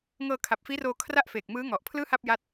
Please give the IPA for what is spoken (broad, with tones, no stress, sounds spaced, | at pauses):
ŋ ɤː˧ kʰ a˨˩ p̚ f iː˦˥ r oː˧ kʰ r a˥˩ ʔ f eː˨˩ k̚ m ɯː˦˥ ŋ ɔ˨˩ ʔ pʰ l ɯː˥˩ h a˥˩ p̚ j a˦˥ t̚